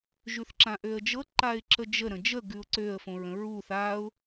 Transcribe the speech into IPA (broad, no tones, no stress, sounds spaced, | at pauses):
ʒ ʉ θ ǁ ã ʔ ø ə̯ d͡ʒ ɤ ǃ a ɪ̯ ǁ ə d͡ʒ ə ɾ ə̃ d͡ʒ ə ɡ ʉ ʊ̯ ǀ ø ə̯ f õ ɹ ə̃ ɹ u θ a ʊ̯